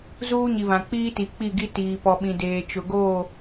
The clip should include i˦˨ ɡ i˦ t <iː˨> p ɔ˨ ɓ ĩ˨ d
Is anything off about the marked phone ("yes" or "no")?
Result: no